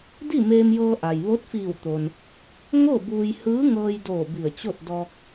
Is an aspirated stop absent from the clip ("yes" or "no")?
yes